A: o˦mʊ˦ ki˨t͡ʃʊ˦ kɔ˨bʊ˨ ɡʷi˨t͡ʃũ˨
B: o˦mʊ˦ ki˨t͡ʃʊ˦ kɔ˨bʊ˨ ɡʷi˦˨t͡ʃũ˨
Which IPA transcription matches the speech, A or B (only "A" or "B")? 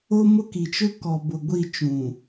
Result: B